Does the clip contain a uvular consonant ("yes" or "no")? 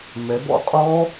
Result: yes